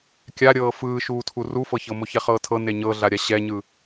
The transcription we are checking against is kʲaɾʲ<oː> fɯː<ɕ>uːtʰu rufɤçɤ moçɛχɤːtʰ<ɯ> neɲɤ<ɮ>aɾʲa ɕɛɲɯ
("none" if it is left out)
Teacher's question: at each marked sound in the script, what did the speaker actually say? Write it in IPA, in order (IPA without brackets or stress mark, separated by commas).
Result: ɤː, ʃ, ɤ, ɮ